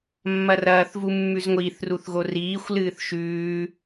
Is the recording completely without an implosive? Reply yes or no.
yes